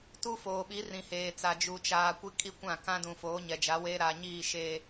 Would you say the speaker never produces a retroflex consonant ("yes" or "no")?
yes